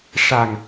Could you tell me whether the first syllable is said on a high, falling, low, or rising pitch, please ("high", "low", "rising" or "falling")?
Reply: low